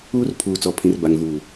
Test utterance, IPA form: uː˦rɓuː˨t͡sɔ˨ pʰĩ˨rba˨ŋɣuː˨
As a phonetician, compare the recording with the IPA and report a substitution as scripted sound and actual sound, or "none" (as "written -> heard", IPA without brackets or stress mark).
ɓ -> pʰ